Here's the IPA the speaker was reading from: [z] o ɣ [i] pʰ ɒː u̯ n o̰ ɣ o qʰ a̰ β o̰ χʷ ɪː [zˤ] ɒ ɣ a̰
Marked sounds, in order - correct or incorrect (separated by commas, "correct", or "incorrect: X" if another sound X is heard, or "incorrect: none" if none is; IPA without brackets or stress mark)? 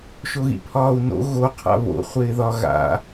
incorrect: ʃ, incorrect: ḭ, incorrect: ð